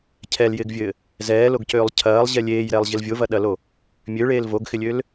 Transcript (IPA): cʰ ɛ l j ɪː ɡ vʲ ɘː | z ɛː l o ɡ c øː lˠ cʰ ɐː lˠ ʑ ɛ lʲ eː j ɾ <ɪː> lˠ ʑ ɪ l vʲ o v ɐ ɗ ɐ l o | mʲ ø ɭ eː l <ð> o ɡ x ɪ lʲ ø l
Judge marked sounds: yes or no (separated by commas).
no, no